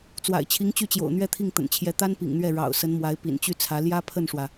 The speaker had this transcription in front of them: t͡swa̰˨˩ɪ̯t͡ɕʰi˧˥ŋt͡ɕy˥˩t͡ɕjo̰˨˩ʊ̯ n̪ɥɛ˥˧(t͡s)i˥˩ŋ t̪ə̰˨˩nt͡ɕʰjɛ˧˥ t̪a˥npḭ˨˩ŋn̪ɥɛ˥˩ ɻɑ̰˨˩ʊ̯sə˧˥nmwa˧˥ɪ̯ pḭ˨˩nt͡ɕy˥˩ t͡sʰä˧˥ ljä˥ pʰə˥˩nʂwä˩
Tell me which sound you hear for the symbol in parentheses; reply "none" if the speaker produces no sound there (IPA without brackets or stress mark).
t̪ʰ